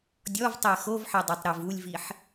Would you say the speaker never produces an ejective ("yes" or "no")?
yes